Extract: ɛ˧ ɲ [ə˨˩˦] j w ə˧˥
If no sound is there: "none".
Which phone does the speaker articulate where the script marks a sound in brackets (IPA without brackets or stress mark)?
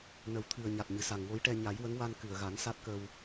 a˨˩˦